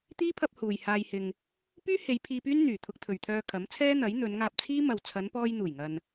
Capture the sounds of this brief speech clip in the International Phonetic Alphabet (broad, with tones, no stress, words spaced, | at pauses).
t̪iː˥pʰɐ˧p̚ huː˨j haː˧jhɪ˧ŋ | pyː˥he˨˧j pʰiː˧pyː˥nn̪yː˨˩ t̪ʰʊ˧k̚t̪ʰɵ˨ɥt̪ʰœː˧ kʰɐ˨˥mt͡sʰɛː˥n̪ɐ˨˥j n̪ɵ˨˧nŋaː˧p̚t͡sʰiː˥ mɐ˨w t͡sʰɐ˨˧npɔː˧j n̪uː˨˩jŋɐ˨n